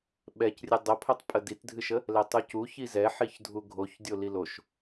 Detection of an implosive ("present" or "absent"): present